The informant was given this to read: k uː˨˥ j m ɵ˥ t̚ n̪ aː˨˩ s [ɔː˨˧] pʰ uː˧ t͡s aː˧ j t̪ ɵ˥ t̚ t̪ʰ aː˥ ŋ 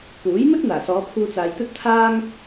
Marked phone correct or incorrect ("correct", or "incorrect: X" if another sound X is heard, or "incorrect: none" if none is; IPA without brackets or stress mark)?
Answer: correct